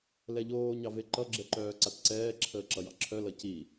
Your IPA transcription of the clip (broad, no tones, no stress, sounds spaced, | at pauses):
l ɛ ʎ oː ɲ ɑ v e ǃ ʌ ɡ͡ǁ ɛ ǃ œː ǀ a t ǀ ɛː ǁʰ əː ǁ ʌ j ɑ̰ ǁʰ œ l ʌ c i